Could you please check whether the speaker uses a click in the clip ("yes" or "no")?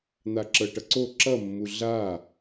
yes